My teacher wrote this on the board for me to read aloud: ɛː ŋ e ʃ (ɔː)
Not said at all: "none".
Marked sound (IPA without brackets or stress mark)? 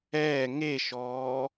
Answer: ɔː